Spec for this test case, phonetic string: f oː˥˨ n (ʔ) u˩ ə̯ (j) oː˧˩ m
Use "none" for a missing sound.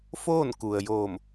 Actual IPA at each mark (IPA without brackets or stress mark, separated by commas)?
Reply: k, j